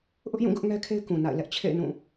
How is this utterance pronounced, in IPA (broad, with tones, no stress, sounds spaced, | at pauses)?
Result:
ʔ ʊ˦ ʔ j ũ˦˨ ɡ ʊ˦ ʔ ŋ ɛ˦ kʰ e˦ ɪ̯ k ũ˨ n a̰˦˨ ɪ̯ l ɛ˦ ʔ t͡ɕʰ ḛ˦˨ ɪ̯ n ũ˦˨